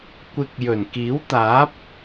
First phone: kʷ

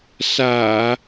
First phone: s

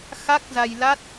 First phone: x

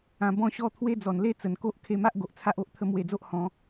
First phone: ã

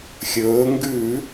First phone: xʲ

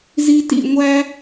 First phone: z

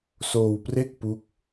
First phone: s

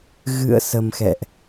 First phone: ɣ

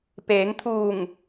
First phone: p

